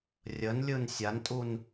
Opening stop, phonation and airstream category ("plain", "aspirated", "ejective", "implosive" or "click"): ejective